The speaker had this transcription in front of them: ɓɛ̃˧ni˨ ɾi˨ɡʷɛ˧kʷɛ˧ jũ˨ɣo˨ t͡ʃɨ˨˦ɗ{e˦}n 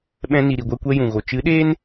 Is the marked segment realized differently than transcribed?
yes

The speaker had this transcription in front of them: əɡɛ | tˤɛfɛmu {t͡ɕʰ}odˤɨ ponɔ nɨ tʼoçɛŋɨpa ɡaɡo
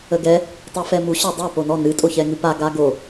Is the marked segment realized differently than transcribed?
yes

